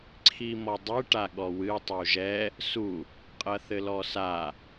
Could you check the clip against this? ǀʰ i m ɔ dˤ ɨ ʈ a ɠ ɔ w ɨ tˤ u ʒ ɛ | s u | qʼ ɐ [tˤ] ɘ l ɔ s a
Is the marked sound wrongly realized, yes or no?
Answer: yes